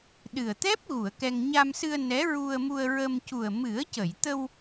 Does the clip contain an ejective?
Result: no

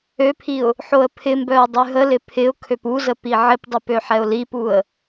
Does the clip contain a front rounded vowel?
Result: yes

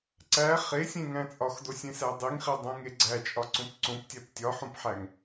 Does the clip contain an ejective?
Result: yes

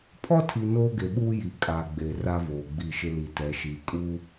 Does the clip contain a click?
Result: no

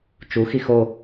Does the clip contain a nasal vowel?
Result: no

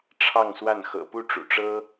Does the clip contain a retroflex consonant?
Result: yes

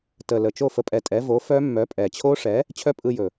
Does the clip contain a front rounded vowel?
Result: yes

